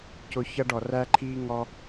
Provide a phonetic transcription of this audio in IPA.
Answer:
cʊ˧ çʌ˧ɖɔ˨ ræ˧ǃʰiː˧ ŋɔ˧

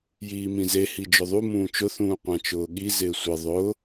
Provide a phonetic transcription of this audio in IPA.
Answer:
jiːmĩze hid͡ʒʊðˤu mũːt͡ʃʊ θũːqʷãt͡ʃʊːɠi zɪːsʷɪ ðˤʊː

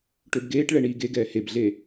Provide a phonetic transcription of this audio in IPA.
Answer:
ʈøbɡeːʈɭɛ ɳiːɡeɡɛː hebɮe

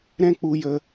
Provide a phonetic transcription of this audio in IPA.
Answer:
ɾɛ̃˦k͡pu˨ jə˨

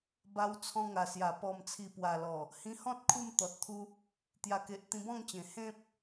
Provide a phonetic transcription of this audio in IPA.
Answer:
ba˧wt͡sʰɔ̃˧ŋa˨˩sja˨˩ pɔ˨˩mt͡sʰi˨˩pwa˨˩lɔ˨˩ | hĩ˧hɔ̃˦t̚ kʰu˥˧mt̪ɔ˨t̚t̪ʰu˦ | t̪ja˨˩ke˨ʔ t̪ĩ˧bɔ̃˥˧ŋt͡ɕẽ˨˩ hẽ˦p̚

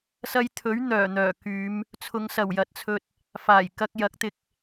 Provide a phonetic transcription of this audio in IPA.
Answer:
sɐ˧jt̪ʰɵ˨˥ɥ n̪œː˨˩n̪œː˨˩ kyː˨˧m | t͡sʰʊ˨˧ŋsɐ˨˩wjɐ˨t̚t͡sʰɵ˧t̚ | faː˨˩jkɐ˧k̚jɐ˨˥k̚t̪ɪ˧k̚

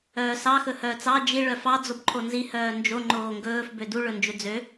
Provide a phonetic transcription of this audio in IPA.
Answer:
œːsɑ xɵhœːt͡sɑ d͡ʒi ɭœfɑ d͡zobǃʰonzi hœːnd͡ʒo ŋ͡ǃoːŋɡɵːf bødu ɭɵnd͡ʒɵd͡zø

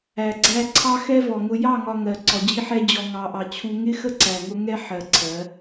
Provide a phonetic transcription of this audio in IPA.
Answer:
æ˨ɡ͡ǀæ˦ ǀʰɑ˦xɛ˦vɔ˨ ŋʊ˨jɑ˦˨ŋɒ˨ ŋɜ˨ ǀɔ˨d͡ʑi˦ħɛ˦ d͡ʑɔ˨ŋɑ˨ʔɑ˨ t͡ɕʰu˦ ŋɪ˦xə˦ ǀæ˨ŋʊ˦ ŋɛ˦ ħɜ˨ǀʰɜ˨˦

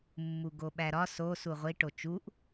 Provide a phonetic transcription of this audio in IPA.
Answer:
mːuɡoɓæɾɒ sosu ʁʷi ʈot͡ʃuʔ

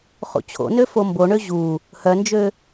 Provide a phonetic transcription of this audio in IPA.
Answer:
χṵt͡ɕʰo̰nø fomboɳø ʑu | hœnd͡ʒø

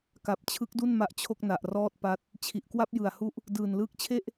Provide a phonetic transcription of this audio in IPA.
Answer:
ka˨˩p̚t͡ɕʰɯ˦˥k̚du˥˩n ma˦˥ʔt͡ɕʰo˥˩k̚na˨˩ʔrɔː˥˩t̚ pa˦˥t̚ | t͡ɕʰi˨˩ʔkwa˥˩p̚ jɯ˨˩a̯hu˦˥ʔ | dɯː˨˩nlɯː˦˥k̚t͡ɕʰe˥˩ʔ

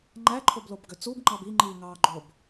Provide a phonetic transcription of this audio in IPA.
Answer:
ŋ͡ǃæǃʰoblobɡø t͡subŋ͡ǃɑb iŋ͡ǃiː ŋɑːɡ͡ǃob

